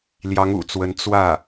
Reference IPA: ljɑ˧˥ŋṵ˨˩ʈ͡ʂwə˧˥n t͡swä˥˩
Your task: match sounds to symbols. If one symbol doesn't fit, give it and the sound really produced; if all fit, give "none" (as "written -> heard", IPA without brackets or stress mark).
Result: ʈ͡ʂ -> t͡s